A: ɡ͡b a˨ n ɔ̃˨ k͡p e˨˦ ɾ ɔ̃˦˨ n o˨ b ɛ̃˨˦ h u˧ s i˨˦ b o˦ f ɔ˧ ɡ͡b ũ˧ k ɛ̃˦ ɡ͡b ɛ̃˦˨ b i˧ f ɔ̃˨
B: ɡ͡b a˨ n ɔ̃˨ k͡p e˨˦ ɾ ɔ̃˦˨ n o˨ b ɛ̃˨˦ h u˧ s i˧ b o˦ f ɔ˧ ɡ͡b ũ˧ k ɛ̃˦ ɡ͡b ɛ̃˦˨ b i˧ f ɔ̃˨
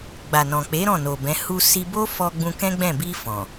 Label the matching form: B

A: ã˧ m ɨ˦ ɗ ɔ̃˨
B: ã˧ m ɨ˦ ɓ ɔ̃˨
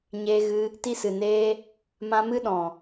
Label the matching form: A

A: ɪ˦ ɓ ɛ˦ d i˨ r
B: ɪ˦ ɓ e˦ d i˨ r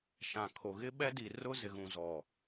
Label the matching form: A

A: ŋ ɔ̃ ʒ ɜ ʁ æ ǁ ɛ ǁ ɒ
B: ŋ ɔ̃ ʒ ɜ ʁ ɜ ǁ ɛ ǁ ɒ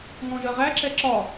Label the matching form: A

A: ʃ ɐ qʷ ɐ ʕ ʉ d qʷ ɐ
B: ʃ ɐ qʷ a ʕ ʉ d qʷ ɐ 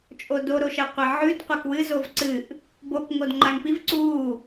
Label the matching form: A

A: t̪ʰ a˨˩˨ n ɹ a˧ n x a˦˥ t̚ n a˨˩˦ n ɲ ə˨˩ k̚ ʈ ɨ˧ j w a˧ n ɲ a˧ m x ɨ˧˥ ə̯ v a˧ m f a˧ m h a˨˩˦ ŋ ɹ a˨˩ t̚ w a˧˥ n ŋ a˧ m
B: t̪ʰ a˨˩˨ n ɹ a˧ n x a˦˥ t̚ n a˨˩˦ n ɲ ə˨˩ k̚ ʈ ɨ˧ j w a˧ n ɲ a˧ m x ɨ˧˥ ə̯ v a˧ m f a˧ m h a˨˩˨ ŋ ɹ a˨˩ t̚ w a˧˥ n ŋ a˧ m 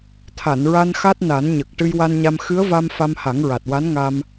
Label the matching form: A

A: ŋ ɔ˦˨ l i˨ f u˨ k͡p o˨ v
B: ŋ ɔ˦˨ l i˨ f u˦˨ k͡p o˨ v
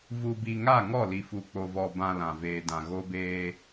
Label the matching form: A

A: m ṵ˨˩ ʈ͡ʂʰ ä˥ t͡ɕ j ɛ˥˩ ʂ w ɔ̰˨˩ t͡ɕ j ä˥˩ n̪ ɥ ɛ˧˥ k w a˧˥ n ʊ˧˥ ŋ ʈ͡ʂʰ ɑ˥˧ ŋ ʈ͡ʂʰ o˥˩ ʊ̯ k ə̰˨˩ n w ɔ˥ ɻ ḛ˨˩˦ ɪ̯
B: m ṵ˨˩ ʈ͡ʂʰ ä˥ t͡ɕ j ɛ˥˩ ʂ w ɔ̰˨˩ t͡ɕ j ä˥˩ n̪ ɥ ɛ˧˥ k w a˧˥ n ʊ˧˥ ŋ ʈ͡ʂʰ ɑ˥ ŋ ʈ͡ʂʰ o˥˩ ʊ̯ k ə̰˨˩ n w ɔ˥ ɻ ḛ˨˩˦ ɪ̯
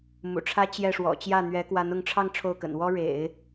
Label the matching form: A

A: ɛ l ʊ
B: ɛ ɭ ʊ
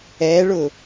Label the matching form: B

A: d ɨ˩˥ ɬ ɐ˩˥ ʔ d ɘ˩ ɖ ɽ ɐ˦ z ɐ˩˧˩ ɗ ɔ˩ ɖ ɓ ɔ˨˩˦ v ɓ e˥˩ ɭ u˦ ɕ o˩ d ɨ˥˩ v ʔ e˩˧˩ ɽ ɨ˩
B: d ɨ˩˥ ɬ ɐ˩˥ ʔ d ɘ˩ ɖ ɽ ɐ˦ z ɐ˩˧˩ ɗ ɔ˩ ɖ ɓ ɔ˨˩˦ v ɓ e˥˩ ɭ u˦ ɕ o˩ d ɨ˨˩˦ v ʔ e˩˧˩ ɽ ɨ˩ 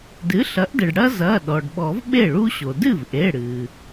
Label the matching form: A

